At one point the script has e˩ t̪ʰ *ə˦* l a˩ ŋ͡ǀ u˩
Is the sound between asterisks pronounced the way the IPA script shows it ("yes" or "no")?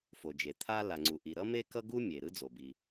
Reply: no